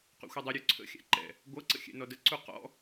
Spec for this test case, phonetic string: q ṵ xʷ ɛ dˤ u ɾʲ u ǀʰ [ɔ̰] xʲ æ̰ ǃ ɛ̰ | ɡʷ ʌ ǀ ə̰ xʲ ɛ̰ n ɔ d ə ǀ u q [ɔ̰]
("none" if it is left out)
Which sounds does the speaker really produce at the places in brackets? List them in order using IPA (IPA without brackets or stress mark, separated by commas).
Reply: ə̰, ɔ̰